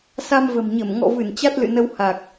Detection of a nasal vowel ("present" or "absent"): absent